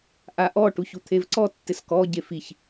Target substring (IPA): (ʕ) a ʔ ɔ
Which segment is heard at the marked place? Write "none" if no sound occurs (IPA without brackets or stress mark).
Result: ʔ